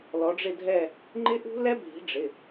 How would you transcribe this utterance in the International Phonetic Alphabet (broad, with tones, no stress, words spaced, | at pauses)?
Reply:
lɔ˨˥ɖ͡ʐɪ˥˧dʱɛ˥˧ | ŋ͡ǃɪ˦˥ʔṳ˦˥lɛ˦˥ bʱi̤˨˥ɖ͡ʐɪ˩˧˩